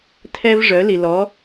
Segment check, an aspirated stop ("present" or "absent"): present